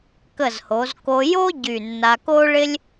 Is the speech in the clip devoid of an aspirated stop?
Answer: yes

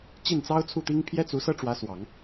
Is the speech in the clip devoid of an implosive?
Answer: yes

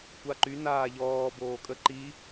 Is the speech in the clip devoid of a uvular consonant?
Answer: yes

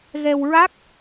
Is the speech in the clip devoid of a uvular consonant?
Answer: yes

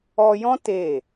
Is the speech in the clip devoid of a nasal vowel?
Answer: no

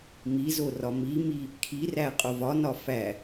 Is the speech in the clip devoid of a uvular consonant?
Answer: no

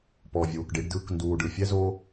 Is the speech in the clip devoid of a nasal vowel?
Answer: yes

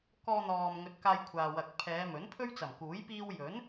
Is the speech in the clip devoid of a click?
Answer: yes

